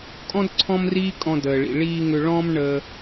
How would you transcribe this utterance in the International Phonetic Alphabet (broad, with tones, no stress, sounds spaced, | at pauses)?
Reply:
kʼ ɔ̃˥ d ǀʰ ɔ̃˥ m r iː˥ kʼ ɔ̃˧ d əː˩ ɭ ḭ˩ ɭ iː˧ ŋ ʏ˧ ɭ ɔ̃˥ m ɳ əː˧